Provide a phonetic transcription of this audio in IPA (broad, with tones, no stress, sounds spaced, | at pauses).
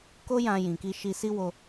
k o˦ j ã˧ j ĩ˨ k i˧ ʃ i˧ s i˦ w o˧